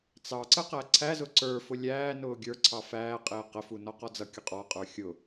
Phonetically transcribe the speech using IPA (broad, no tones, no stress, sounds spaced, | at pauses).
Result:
t͡s ɑ ǀ ə q æ ǀʰ æ z ʊ ǀ ə˞ f ʊ lʲ æː n ʊː ɡʲ ə˞ ǀʰ ɑ f æː qʼ ɪː q ə f u n ɔ q ɔ d͡z ʌ kʲ ʊ qʼ ɔ qʼ ə˞ xʲ ʊ